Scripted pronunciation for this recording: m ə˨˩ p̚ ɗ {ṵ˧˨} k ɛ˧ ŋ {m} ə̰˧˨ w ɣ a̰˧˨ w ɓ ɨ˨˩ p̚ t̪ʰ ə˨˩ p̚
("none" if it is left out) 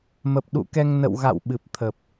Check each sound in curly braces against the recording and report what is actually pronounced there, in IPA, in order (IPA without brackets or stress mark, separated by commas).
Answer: ṵ˧˨, n